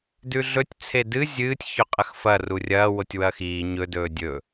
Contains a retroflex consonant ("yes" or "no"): no